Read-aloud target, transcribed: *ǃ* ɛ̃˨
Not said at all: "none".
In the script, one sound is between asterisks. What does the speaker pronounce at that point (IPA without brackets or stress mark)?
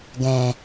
ɡ